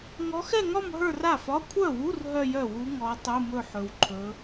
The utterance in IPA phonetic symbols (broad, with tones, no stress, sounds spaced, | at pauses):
ŋ ɔ˧˥ x ɛ˥˧ ŋ ɒ˥˧ m ɦ ə˞˥˧ r a˥˩ f ɒ˧˥˧ kʷʰ œ˥˩ w u˧˥˧ r ɦ œ˥˧ j œ˥˩ w u˧˥ ŋ ɔ˧˥ tˤ u˧˥˧ m ɵ˥˧ ħ ɵ˧˥ w ǃʰ ɵ˧˥